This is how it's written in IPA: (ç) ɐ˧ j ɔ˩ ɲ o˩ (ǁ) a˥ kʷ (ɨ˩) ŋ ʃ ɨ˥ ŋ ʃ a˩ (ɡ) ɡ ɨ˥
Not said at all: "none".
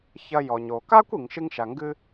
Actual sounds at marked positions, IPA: ç, k, i˩, ŋ

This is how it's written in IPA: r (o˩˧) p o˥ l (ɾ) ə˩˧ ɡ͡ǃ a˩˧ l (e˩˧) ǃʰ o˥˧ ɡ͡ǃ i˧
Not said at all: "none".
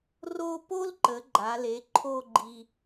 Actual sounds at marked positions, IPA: o˥˧, ǃ, e˩˧

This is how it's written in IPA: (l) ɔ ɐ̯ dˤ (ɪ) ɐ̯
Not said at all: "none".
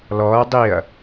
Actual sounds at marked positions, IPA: l, i

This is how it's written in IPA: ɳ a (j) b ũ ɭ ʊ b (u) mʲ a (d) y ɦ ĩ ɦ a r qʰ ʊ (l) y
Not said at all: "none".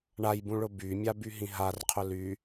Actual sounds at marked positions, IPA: j, y, b, l

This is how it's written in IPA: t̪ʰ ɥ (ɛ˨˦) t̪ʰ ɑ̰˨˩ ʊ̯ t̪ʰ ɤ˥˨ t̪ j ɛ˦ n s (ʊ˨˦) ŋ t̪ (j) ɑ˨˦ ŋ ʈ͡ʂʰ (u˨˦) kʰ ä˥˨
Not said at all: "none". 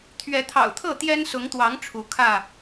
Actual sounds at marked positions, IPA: ɛ˨˦, ʊ˨˦, w, u˨˦

